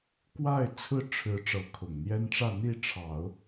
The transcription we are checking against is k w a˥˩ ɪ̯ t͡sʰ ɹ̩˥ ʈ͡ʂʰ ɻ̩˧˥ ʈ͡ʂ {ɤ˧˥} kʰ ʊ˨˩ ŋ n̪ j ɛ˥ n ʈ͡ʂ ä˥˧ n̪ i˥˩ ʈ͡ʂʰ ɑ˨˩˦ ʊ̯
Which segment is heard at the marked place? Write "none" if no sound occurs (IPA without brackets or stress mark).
ɤ˧˥